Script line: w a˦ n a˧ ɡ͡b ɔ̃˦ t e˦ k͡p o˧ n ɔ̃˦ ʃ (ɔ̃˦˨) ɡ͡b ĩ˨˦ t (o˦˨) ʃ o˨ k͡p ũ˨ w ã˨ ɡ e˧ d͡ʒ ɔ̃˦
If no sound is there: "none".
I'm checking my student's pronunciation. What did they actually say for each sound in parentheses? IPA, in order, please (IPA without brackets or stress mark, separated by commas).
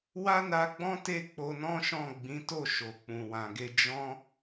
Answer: ɔ̃˦˨, o˦˨